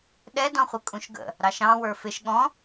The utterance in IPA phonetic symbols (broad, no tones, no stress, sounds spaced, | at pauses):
ɗ ɛ d ɔ̃ χʷ ə kʼ ũ ʃ ɡ ə̰ | ɾ ɑ ʃ ɑ̃ w ə˞ f ɪ ʃ ɠ ɔ̃